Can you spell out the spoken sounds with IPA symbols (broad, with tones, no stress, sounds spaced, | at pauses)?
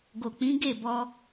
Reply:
ɡ o˨ k͡p ĩ˨˦ ɡ e˦˨ b ɔ˧